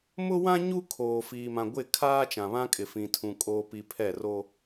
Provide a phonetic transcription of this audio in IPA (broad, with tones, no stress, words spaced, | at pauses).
mʊ˦wã˦ ɲu˦kʰoː˨ fiː˨mã˨ɡʷɪ˦˨ kʰaː˦t͡ʃã˨βã˦ kʼɪ˨fĩ˨tʰũ˨ kʼoː˨pi˨ pʰɛ˦˨ro˦